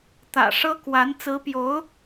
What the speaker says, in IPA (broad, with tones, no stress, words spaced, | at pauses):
t̪ä̰˨˩ʂɤ˥kwa˧˥n t͡sɹ̩˧˥pjo˧˥ʊ̯